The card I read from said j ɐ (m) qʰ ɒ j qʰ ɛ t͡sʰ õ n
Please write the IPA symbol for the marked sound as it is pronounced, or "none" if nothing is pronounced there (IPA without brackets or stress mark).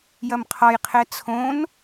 m